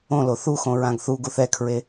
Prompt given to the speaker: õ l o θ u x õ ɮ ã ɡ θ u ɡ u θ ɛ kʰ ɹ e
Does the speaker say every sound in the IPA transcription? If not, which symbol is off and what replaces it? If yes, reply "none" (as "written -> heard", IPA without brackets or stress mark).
ɮ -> ɹ